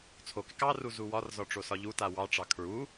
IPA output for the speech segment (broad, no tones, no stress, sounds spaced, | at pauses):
t͡sʰ o k ɪ k ɑ r u z u w ɒ r z ɒ ʈ͡ʂ o s ɒ ʎ u t a w ɑ ʈ͡ʂ ɑ kʰ ɹ u